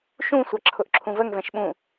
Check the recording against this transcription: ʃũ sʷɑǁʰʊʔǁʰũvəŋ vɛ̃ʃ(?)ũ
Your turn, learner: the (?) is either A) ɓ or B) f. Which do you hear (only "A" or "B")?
A